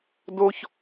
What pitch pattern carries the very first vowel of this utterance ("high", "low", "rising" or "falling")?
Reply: high